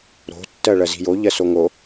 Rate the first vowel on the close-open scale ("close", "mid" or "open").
mid